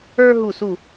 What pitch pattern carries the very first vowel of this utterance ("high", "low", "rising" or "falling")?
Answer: high